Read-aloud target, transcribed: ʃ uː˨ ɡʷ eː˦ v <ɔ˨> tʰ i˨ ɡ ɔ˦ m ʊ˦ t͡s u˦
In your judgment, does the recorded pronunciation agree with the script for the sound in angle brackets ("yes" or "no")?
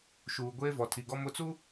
yes